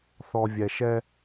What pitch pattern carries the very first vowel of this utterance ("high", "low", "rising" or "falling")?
low